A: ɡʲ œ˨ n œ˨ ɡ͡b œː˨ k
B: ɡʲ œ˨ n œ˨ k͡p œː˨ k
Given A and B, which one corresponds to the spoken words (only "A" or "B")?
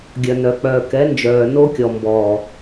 B